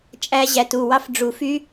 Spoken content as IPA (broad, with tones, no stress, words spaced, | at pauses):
t͡ʃʼæ˦˥ ʑæ˩˥tu˩˧˩wɑ˦˥f ɖ͡ʐu˨˩˦fy˦˥